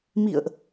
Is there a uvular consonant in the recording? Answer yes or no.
no